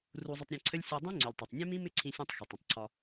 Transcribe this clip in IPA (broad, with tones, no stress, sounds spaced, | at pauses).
r u˧ zˤ ə˧ tˤ ɾʲ ɛ̃˧ ǀʰ ə˦ lʲ sʲ o˧ dˤ ĩ˦ ŋ͡ǀ u˨ lʲ tˤ ɛ˨ tˤ nʲ ɛ̃˦ m ĩ˦ m ɪ˦ ǀʰ ĩ˧ sʲ õ˧ tˤ x ɛ˨ tˤ ə̃˨ tˤ ǀʰ ɒ˧